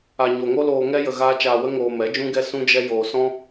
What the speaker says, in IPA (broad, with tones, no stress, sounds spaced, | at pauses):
a˨ ɲ o˨ ŋ o˦ l oː˧ ŋ ɛ˦ j ə˧ ɣ aː˦ t͡ʃ aː˧ w ə˦ ŋ oː˧ m ɛ˨˦ d͡ʒ ũ˦ ɡ ɛ˦ s ũ˦ d͡ʒ ɛ˦ j oː˧ s ɔ̃˦